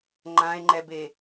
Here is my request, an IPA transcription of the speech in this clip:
ŋ͡ǃãe̯ŋ͡ǃɛbe

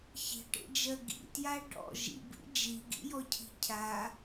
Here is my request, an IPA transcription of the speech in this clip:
çi̤ʈḛd͡ʒɜ ɡḭtja ɖɔ̰ ʒḭbḭ d͡ʒiɡḭjɔcʰi̤ cʰa

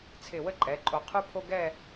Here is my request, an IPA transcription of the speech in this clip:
t͡sʰɪ˧˩wə˥ǃʼɛ˩˧ǃʼo˧˩ qʰʉ˥pʰo˥ ɡɛ˥˧

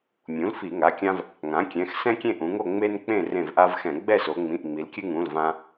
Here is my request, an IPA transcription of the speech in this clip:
mʲũ˩˥l fi˧˩˧ŋa˩˧˩kʲã˦v | ŋã˩˥kʲɛ̃˩˧˩x sɛ̃˦ kʲẽ˦˨ʔũ˩˧ŋo˦˨ ŋ͡me˦nk͡pẽ˦˨ rẽ˦˨vʔa˦vxɛ̃˧˩˧ ɡ͡bɛ˦˨so˩˧ ŋ͡mĩ˩˧˩ʔŋ͡mi˩˧lkʲɨ˦ŋũ˩˧˩l vã˦

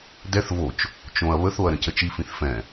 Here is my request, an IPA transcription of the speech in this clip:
dɛθ vot͡ʃ | t͡ʃõɐ̯ βəθoɐ̯ ɾə̃cət͡ʃifĩθ fɛ̃

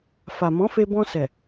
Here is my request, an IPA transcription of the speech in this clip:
fa˨mɔ̃˨˦fe˧ bɔ̃˧sɛ˨

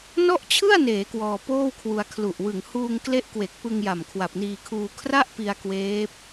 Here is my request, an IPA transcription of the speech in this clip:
nɔ˥˩ʔt͡ɕʰɯ˥˩a̯neː˩˦ kwɔː˧poː˥˩wkʰwu˧a̯ kʰlu˨˩ʔwɯ˨˩ŋ huː˧ŋkle˦˥ʔ kwe˨˩k̚pɯ˧ŋja˨˩m kʰwa˨˩p̚niː˧kʰuː˧ kʰra˥˩ʔpi˧a̯ kweː˦˥p̚

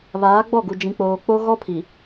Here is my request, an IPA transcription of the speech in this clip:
βaː˨˦ɡ͡bɔ˦˨ɡu˨ d͡ʒĩ˨k͡poː˨ k͡po˦ɣɔ˦pʰi˨

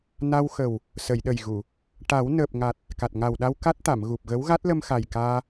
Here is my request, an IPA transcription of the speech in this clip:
na˧wxə˨˩w | sə˨˩˨jɗə˨˩jɣu˨˩˨ | ʈa˨˩˦wnəː˨˩p̚ŋa˨˩t̚ | ka˨˩t̚ŋa˨˩wɗa˧w ka˦˥t̚t̪a˨˩˨m ɣu˨˩p̚ɣə˧˥w ɣa˦˥t̚lə˧mxa˨˩j kaː˧

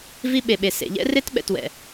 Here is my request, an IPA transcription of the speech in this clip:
vi˦ɓe˨ɓe˨ sḛ˨ʎɛ̰˦ re˦tɓɛ̰˨twɛ̰˨

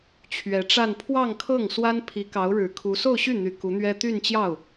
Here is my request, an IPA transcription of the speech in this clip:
t͡ɕʰɥɛ˧˥ʈ͡ʂa˥˧n pʰwɑ˥˧ŋkʰɤ˥˩ŋswa˥n pʰi˧˥kɑ˧˥ʊ̯ɻɻ̩˨˩kʰu˧˥ so˥˧ʊ̯ɕy˥˩n̪y˨˩ ku˧˥n̪ɥɛ˥ t̪y˥˧nt͡ɕjɑ˥˩ʊ̯

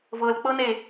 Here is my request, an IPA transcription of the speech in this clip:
vɤlk͡pɤne

